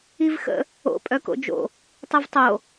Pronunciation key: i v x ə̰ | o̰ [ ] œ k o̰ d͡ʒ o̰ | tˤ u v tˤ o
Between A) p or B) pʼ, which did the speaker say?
B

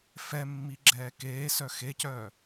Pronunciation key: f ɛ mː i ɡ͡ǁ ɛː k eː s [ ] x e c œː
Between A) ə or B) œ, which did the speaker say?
B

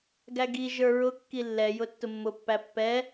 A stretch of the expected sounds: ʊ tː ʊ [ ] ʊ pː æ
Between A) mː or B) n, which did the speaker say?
A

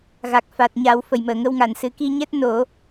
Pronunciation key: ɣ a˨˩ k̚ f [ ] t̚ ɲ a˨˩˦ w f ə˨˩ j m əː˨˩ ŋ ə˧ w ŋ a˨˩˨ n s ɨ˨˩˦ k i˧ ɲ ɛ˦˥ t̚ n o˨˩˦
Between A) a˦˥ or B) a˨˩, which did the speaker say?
B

